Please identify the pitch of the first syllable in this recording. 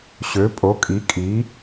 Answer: rising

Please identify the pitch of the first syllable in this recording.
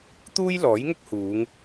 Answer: high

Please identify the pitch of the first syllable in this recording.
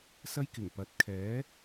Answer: high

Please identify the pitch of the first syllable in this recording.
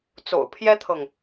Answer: low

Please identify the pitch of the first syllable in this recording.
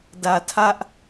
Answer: low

